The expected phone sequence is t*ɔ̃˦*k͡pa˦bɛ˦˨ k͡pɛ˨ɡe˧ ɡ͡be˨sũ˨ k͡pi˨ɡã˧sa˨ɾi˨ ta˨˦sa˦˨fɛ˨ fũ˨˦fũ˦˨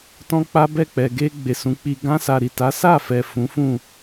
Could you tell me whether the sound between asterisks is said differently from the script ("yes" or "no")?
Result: no